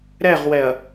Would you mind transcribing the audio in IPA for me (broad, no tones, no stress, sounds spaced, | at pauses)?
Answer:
ɾ ɛ ʁ w ɛ ɐ̯